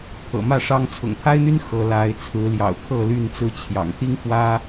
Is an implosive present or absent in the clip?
absent